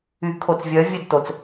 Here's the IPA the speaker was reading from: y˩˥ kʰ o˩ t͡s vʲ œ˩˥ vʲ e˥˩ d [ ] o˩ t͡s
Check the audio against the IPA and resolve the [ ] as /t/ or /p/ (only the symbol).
t